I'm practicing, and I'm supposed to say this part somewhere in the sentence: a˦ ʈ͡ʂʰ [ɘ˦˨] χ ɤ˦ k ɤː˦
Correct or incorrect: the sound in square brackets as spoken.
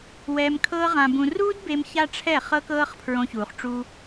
incorrect: ɛ˦˨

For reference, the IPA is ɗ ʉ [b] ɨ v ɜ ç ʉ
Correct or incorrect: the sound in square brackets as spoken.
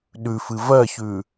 incorrect: f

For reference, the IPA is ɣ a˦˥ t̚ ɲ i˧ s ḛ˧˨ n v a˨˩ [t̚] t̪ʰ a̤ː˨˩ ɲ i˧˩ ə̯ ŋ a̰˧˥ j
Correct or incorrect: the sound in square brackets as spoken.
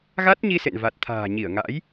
correct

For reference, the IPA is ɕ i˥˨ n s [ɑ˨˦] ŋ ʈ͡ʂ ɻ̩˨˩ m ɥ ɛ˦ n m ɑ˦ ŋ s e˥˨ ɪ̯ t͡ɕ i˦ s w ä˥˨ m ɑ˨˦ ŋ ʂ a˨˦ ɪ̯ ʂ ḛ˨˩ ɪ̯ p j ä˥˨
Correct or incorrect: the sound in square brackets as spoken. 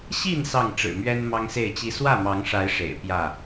incorrect: ɑ˥˨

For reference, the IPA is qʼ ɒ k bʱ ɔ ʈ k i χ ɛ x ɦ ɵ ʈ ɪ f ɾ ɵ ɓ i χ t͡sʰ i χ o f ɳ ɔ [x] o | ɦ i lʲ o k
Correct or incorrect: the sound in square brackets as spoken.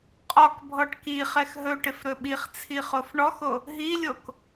correct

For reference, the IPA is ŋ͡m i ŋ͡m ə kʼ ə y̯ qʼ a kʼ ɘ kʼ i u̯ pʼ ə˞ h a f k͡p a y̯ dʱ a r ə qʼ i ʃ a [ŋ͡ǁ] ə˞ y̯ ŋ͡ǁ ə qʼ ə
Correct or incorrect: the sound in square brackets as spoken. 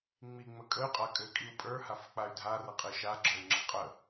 incorrect: ɡ͡ǁ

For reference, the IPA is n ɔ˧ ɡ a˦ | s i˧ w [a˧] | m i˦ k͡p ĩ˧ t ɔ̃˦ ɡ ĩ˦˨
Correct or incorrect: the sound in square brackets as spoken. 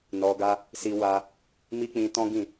correct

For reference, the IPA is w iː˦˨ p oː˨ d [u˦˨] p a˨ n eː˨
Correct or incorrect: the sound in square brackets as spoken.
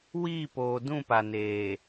incorrect: ũ˦˨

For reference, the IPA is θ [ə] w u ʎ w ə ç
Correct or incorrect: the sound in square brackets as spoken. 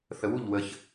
correct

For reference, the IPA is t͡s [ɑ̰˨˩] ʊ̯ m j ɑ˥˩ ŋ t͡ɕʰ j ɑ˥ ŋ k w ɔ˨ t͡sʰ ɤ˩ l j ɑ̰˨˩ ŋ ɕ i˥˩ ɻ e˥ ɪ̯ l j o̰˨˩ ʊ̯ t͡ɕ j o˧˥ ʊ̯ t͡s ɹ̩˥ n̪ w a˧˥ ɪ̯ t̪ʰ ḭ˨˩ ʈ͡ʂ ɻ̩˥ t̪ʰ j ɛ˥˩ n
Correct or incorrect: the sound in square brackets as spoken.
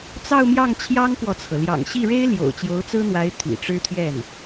incorrect: ɑ˥˧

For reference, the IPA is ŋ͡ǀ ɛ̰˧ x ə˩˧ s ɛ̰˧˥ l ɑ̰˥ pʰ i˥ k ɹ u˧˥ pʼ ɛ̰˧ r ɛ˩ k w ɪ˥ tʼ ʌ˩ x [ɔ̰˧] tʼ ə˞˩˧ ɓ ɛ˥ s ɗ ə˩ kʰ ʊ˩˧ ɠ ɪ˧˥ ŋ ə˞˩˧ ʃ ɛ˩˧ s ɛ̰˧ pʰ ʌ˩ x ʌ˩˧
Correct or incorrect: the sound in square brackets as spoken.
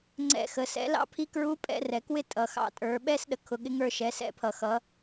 incorrect: ɑ̰˧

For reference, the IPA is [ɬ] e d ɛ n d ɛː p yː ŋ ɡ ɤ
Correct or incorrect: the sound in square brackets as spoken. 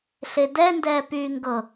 correct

